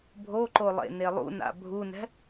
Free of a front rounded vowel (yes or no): yes